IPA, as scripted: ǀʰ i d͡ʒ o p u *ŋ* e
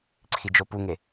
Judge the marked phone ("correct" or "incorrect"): correct